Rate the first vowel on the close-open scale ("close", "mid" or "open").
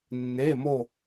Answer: mid